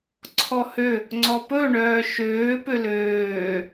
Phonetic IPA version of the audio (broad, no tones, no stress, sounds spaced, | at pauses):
ǀʰ ɔ h ø | ŋ͡ǀ ɔ p ɵ ɳ œː ʃ øː p ø l øː